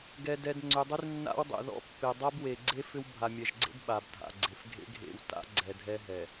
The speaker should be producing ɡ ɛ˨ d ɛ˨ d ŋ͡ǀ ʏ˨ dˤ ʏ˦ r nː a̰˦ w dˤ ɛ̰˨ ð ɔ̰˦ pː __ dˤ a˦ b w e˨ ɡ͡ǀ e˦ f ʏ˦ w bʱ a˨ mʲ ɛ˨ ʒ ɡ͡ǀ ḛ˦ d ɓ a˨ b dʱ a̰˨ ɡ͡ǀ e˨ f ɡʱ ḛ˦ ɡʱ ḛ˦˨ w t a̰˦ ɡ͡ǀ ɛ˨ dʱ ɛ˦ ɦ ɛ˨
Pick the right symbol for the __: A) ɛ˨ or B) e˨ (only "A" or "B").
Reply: B